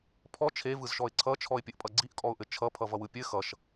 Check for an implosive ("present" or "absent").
absent